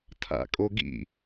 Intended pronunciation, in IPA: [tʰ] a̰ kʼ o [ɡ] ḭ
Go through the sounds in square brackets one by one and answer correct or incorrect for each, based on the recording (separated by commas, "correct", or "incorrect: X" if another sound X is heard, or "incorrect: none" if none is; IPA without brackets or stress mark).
correct, correct